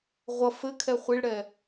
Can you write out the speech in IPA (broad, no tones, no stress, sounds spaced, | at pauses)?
ʁʷ ʌ f ɘ kʰ ɛ χʷ i ɭ ɽ ɛ